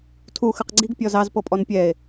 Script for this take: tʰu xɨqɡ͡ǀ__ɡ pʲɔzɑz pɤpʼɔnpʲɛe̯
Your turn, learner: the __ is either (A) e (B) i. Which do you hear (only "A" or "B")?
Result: B